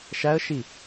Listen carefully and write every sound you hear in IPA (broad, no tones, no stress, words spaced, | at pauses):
ʃæə̯ʃi